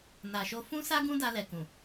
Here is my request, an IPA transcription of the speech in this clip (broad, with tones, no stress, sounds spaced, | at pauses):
n a˨ ʃ o˧ f ũ˦ s a˦ ɡ ũ˦ d a˧ l ɛ˨ k ũ˨